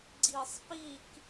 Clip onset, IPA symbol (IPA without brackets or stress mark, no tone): ɡ͡ǀ